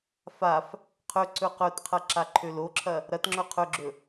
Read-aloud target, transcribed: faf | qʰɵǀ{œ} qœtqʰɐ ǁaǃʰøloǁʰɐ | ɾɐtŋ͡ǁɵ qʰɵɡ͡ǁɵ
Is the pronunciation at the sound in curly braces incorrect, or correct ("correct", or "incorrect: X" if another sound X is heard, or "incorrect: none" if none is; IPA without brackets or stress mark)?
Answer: incorrect: ɵ